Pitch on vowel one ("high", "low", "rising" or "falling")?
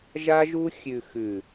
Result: high